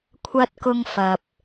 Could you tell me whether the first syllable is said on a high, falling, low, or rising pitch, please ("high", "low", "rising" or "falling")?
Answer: high